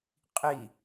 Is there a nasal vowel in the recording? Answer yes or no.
no